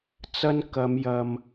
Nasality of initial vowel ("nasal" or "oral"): oral